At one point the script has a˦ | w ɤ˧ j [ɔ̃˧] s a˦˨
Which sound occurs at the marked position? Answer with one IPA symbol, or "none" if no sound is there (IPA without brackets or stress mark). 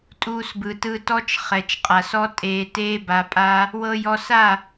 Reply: ɔ˧